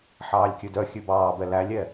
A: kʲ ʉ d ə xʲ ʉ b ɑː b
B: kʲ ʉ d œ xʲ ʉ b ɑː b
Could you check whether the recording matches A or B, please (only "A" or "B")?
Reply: B